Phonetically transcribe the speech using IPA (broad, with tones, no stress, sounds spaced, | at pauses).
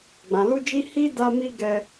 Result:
ɡ͡b ã˨ l u˧ d͡ʒ i˧ h i˦ d a˧ m i˧ ɡ ɛ˧